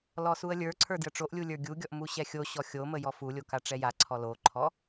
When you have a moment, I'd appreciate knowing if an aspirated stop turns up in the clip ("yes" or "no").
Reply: yes